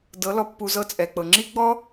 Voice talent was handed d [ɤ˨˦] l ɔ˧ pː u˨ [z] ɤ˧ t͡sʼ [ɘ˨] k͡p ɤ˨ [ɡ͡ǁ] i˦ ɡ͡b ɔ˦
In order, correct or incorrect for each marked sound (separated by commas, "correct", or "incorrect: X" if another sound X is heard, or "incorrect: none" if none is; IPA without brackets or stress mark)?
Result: correct, correct, incorrect: ɛ˨, incorrect: ŋ͡ǁ